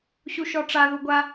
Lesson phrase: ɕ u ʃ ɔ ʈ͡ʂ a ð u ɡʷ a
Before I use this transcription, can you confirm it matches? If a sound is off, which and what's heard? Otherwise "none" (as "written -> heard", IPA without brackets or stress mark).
none